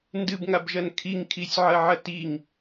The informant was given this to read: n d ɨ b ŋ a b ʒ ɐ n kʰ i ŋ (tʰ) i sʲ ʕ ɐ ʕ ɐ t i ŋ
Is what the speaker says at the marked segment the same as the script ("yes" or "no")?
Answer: no